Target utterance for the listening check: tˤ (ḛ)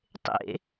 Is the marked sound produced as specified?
yes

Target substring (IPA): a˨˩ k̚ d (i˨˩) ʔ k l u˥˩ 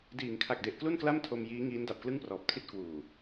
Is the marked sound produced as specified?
no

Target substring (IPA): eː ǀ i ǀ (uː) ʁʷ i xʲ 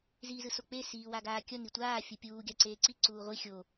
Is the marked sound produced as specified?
yes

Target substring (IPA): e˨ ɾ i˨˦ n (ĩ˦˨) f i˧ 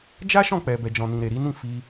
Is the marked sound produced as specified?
yes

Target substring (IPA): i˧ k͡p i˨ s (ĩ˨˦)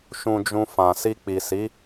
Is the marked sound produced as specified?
no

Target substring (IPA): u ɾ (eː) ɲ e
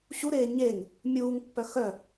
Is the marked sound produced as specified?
yes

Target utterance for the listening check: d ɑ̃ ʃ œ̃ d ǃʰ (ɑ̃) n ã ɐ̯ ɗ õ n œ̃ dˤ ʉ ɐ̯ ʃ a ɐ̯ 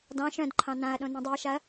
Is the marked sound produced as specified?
yes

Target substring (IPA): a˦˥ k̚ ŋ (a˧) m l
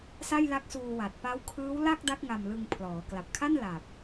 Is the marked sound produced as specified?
yes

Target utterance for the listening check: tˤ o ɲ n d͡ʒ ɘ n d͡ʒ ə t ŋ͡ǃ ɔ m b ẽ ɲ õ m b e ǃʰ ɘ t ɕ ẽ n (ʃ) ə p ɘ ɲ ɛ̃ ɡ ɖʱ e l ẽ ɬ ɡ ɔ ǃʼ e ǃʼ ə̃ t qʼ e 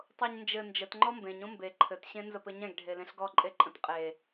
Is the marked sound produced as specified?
no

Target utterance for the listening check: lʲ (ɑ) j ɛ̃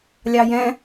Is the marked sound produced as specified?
yes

